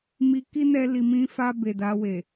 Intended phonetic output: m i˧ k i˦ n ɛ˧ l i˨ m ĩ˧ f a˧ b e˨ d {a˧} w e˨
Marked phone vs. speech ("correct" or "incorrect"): correct